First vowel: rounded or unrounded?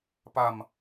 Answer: unrounded